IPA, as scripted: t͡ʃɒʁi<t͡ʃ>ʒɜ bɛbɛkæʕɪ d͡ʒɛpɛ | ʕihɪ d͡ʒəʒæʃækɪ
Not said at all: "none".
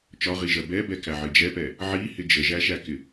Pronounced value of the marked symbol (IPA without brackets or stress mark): none